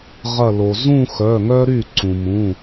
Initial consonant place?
uvular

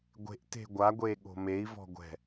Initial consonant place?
velar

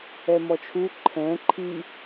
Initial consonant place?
labial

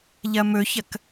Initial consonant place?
palatal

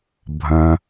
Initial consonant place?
labial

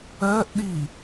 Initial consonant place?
glottal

